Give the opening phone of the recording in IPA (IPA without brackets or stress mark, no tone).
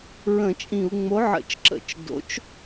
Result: ɹ